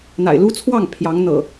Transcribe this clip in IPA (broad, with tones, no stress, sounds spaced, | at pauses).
n̪ a̰˨˩ ɪ̯ l u˦ t͡sʰ w ɑ˥˨ ŋ pʰ j ɑ˨˦ ŋ n̪ ɤ̰˨˩